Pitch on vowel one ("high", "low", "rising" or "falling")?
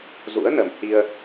rising